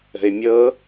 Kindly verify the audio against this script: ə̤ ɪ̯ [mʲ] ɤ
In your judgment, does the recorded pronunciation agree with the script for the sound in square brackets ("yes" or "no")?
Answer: yes